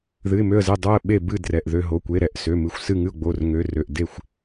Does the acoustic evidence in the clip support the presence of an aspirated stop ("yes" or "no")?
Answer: no